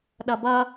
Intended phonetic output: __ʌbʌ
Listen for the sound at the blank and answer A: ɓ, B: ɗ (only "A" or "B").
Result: B